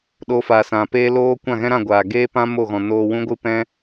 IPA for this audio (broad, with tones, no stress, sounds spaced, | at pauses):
ɗ o˧ f aː˨ s ã˨ p eː˦ l oː˦ kʷ ã˦˨ ɣ ɛ̃˦ ɾ ã˦˨ ɡʷ aː˨ ɡ eː˦ p ã˦ m o˦˨ ɣ ɔ̃˨ n oː˧ w ũ˦ ɡʷ ɨ˦ p ɛ̃˦